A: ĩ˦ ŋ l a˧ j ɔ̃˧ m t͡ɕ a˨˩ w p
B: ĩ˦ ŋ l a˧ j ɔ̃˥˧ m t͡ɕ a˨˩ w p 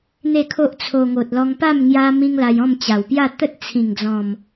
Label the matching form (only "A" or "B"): B